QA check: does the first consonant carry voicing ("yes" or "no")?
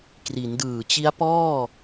no